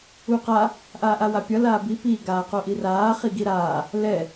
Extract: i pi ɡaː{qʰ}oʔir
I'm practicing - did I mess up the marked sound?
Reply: yes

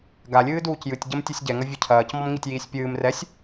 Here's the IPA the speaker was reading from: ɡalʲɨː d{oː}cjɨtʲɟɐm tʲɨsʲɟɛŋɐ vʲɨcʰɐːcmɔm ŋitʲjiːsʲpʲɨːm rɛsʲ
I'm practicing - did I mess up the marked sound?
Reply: yes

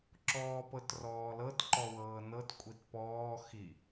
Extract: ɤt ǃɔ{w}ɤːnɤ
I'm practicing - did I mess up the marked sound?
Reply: no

